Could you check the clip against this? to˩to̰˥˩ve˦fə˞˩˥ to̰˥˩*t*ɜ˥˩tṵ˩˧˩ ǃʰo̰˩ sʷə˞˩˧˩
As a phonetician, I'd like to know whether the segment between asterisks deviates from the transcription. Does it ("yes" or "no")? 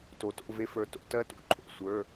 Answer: no